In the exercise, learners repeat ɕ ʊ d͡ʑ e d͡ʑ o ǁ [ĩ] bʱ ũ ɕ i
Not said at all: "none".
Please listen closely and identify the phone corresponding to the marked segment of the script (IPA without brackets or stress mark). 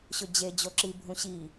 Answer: i